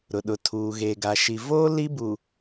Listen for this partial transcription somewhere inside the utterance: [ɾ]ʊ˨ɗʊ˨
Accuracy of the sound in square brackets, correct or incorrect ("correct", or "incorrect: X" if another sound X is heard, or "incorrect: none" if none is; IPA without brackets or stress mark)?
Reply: correct